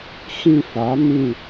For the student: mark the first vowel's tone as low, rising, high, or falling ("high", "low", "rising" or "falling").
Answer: falling